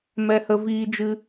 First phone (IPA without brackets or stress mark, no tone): m